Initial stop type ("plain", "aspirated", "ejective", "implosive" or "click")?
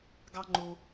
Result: plain